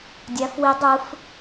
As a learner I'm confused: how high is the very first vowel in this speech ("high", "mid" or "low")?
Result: low